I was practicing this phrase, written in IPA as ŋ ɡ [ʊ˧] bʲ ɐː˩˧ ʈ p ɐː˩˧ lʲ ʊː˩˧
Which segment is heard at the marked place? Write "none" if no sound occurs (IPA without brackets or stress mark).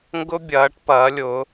ʊ˧